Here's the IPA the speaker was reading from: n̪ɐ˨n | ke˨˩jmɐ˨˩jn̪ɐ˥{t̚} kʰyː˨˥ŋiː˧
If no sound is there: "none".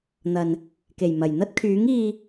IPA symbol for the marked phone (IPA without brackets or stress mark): t̚